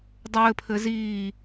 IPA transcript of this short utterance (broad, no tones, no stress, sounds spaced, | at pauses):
dˤ ɘː pʰ ɘ z iː